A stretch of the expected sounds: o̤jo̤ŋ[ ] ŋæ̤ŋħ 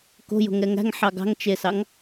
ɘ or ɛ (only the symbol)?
ɛ